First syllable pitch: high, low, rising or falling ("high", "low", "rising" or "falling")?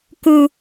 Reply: low